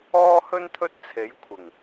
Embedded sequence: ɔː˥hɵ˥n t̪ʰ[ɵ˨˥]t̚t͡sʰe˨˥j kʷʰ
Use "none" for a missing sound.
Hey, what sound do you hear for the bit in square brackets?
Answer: ɵ˥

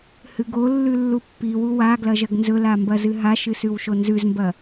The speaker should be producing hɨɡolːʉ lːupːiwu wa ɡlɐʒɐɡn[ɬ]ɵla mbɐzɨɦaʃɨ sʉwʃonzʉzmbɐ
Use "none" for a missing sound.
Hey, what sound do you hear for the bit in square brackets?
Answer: z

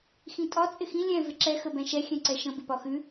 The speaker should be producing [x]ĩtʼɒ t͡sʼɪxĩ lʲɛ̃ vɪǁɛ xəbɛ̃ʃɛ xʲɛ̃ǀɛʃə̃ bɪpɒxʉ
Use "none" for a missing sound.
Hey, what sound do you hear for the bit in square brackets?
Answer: x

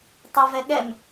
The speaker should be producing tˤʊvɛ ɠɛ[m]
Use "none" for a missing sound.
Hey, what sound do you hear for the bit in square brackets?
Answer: m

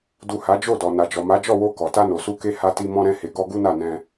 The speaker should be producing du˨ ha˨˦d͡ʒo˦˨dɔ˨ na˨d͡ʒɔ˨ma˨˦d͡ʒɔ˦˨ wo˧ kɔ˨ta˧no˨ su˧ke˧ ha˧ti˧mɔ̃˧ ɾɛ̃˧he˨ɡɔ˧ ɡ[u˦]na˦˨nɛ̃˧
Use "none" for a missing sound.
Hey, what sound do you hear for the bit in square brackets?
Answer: u˦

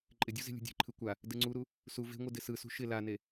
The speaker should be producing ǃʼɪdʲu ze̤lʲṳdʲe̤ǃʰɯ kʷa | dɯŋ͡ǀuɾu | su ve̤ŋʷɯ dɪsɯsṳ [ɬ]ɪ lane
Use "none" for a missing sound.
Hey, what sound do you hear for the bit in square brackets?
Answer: ʃ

